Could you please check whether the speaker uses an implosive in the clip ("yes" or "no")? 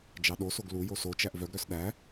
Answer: yes